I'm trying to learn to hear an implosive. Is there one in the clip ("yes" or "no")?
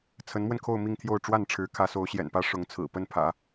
no